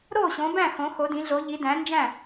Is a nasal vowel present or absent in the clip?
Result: present